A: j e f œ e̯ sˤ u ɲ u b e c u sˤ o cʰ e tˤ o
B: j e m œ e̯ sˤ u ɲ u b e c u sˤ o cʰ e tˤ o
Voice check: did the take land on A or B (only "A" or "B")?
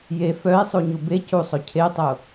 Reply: A